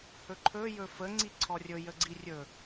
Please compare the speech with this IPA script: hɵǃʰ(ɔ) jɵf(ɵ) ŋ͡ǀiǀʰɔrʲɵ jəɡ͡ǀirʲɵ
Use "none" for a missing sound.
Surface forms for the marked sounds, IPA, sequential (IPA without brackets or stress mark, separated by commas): ɵ, ə